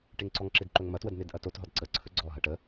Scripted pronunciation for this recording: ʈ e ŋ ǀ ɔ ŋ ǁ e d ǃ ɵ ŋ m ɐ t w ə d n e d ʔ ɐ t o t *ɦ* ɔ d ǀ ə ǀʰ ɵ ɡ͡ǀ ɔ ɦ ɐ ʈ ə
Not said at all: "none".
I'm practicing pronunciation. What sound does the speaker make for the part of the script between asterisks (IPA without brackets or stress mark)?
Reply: ɦ